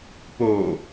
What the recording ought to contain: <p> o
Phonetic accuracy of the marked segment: correct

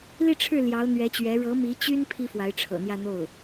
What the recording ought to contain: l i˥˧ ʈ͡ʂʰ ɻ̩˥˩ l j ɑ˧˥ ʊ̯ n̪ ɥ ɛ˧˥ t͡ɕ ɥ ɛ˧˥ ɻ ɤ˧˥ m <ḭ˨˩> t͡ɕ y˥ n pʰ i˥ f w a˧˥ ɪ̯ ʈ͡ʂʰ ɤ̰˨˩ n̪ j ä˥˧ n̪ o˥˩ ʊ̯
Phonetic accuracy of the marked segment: incorrect: i˧˥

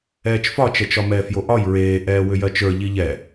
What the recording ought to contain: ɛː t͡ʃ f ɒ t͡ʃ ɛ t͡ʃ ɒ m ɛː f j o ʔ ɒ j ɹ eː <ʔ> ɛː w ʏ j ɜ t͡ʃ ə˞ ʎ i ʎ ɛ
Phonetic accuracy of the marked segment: correct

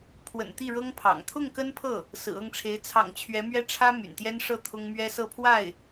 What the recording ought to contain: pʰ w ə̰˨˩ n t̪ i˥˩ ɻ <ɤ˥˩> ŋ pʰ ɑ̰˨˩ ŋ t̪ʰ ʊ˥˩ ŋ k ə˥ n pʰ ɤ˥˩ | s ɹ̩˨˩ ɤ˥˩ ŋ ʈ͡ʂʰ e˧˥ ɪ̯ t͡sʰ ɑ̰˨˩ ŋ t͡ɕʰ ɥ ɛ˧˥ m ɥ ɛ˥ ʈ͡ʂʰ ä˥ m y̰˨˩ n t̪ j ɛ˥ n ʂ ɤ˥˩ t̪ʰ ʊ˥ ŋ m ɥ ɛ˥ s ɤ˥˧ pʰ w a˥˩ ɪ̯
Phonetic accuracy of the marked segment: incorrect: ɤ˥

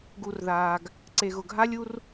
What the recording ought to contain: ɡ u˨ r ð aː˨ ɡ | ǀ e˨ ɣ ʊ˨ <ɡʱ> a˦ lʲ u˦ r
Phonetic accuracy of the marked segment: correct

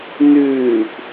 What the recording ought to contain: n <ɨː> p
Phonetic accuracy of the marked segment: incorrect: ʉː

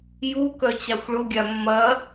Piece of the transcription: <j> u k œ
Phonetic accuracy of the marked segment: correct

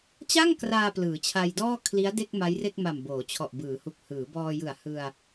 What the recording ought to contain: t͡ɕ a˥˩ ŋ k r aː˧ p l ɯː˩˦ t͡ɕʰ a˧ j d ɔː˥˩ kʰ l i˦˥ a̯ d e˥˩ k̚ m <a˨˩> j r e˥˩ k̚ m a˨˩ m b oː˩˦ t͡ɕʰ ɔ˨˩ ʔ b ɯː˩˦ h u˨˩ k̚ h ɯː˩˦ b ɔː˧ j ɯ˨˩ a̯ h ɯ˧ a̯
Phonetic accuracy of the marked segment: incorrect: a˦˥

